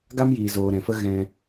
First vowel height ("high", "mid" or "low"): low